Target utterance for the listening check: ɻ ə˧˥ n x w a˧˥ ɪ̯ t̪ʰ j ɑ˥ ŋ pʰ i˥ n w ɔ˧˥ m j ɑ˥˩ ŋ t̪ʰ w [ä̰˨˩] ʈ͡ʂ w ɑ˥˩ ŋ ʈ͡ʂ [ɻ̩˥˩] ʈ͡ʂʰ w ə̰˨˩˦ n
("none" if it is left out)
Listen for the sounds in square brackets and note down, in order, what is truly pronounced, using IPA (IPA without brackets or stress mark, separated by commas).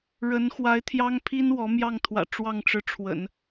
ä̰˨˩, ɻ̩˧˥